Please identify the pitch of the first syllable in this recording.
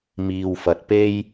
low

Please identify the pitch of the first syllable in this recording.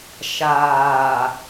low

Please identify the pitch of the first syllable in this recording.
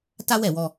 high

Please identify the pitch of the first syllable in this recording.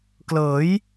rising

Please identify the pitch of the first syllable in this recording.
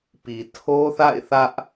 low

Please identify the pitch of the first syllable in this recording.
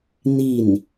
falling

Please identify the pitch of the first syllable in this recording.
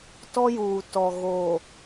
high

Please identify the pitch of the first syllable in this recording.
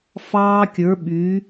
high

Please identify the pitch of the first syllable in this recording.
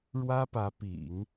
high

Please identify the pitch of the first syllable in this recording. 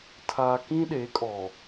low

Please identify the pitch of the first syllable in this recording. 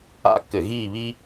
high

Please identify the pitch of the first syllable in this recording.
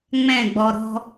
falling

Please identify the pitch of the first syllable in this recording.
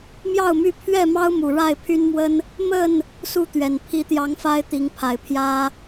falling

